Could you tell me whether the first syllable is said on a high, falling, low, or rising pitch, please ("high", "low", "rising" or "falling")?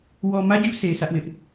low